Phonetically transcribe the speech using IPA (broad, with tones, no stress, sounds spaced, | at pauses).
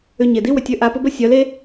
ʏ˧ ɲ e˨ d i˦ w ʏ˨ tʲ ø˧ ʔ a˧ p ʊ˦ b ə˦ sʲ œ˨˦ l e˦